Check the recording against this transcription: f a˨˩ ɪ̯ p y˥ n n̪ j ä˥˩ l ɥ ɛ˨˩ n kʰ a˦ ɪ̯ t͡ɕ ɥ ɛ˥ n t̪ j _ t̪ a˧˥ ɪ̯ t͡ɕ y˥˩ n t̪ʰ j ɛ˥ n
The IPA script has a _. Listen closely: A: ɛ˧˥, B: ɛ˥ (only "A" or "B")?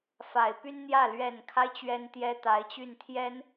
B